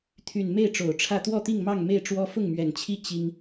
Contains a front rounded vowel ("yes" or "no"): yes